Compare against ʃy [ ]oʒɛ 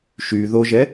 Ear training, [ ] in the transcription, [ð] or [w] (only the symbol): ð